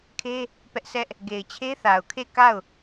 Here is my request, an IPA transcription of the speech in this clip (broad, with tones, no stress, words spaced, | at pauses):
kʰe˦ | pɛ˦ʔsɛ˦ʔ | ɡe˨ɪ̯t͡ɕʰe˦θa˨ʊ̯kʰe˦˨ ka˦˨ʊ̯